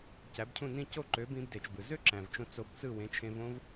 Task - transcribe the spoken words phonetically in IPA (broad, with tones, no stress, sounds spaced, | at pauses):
c æ˩˥ b cʰ ũ˥˩ n ĩ˥˩ c o˥˩ ǃ ø˩˥ b ĩ˧ b d e˩ t͡ʃ b ɯ˩ z ø˥ ǁ æ̃˩ v t͡ʃ õ˧ t͡s o˧ b t͡s ɯ˥˩ w ẽ˩˥ t͡ʃʰ ẽ˧ v õ˥ v